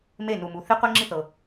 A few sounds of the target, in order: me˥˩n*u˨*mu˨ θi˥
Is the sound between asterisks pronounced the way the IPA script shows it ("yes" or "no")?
yes